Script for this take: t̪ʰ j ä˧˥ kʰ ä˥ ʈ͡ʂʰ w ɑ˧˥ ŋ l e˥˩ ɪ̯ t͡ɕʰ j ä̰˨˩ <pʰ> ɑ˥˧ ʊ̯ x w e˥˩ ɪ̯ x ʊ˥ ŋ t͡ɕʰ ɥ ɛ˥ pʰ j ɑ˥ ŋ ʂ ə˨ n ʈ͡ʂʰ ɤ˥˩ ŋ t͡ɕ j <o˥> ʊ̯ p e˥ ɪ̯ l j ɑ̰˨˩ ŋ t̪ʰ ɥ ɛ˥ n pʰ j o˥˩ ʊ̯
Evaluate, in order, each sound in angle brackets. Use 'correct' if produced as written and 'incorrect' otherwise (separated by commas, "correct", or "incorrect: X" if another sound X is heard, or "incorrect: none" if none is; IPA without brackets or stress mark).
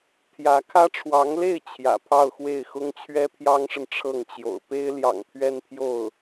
correct, incorrect: o̰˨˩